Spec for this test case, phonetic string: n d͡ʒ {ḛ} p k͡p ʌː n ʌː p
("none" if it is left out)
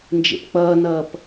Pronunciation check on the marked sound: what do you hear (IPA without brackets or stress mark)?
ḛ